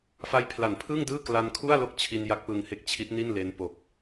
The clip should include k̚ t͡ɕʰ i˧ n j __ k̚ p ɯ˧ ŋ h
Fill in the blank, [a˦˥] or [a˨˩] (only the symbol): a˦˥